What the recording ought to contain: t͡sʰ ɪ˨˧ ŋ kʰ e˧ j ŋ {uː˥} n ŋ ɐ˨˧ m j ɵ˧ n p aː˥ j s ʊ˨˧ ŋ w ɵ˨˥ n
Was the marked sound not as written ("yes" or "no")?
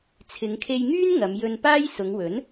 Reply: yes